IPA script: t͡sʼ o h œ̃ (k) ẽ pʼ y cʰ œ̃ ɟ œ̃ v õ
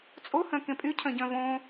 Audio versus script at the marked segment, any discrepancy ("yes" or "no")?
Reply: no